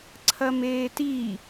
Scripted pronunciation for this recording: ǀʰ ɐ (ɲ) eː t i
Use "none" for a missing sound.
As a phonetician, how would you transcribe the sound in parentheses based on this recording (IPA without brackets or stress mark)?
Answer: m